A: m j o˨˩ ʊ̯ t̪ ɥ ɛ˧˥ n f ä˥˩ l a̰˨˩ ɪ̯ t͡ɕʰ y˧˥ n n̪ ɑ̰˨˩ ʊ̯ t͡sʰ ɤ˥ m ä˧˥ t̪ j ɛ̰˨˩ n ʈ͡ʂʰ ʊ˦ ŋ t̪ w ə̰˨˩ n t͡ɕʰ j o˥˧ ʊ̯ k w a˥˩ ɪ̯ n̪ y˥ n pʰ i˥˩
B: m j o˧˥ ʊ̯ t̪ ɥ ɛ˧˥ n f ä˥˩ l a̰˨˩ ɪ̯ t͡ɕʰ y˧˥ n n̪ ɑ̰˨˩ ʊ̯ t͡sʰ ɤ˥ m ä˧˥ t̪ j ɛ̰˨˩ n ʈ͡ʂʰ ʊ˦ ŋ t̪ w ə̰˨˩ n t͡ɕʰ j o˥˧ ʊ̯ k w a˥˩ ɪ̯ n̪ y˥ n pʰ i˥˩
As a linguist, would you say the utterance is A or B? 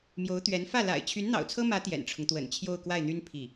B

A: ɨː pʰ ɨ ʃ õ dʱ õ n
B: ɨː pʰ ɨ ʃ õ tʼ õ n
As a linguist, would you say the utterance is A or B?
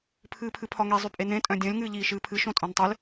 B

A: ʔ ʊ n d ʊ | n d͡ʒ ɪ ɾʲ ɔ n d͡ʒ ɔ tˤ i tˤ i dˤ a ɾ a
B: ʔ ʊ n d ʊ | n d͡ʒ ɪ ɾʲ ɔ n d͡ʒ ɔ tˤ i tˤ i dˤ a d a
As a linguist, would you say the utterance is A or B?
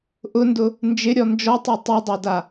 B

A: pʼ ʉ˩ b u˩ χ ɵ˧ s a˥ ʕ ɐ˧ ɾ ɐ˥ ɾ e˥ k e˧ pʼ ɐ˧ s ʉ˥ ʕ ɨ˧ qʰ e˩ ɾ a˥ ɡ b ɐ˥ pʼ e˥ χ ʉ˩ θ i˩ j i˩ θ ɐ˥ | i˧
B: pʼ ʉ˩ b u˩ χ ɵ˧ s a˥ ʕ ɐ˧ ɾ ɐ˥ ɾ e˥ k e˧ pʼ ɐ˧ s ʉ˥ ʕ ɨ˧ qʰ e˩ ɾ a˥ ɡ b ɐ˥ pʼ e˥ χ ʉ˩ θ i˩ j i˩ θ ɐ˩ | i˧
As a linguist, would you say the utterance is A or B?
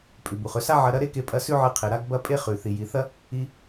A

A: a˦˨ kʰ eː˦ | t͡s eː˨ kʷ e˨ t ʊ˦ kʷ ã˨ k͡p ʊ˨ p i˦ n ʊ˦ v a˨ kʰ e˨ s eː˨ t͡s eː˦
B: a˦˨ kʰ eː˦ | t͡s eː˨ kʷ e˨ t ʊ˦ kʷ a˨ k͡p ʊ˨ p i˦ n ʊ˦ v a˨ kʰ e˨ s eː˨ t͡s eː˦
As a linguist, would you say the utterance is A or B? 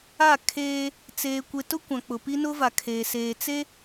A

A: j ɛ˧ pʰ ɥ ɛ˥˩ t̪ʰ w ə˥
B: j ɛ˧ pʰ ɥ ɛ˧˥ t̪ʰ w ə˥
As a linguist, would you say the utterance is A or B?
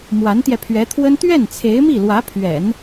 B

